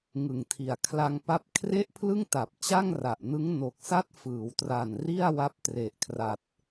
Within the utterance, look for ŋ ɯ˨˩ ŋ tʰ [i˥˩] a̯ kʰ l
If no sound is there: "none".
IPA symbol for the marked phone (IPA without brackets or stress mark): i˨˩